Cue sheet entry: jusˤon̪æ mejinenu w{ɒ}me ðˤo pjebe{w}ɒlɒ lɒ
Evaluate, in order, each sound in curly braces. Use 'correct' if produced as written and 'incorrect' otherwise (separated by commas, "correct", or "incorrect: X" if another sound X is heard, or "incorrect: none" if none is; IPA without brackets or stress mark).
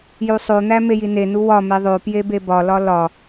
correct, incorrect: b